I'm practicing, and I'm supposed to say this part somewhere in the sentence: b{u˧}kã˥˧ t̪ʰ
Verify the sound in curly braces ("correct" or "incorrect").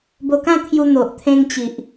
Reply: incorrect